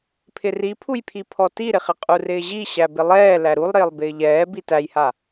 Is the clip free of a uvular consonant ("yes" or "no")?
no